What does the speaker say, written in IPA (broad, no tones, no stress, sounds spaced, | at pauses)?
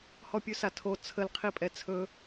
h ɔ pʲ ʉ s a tʰ o t͡sʰ ə l qʰ i pʼ ɛ t͡sʰ ɵ